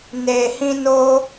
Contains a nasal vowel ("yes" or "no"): yes